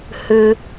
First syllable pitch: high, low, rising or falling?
high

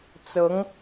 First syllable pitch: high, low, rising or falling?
rising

